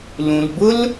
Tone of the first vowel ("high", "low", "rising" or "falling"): low